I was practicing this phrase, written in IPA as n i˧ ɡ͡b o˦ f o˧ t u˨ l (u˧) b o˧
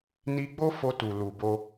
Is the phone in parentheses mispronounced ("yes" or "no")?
yes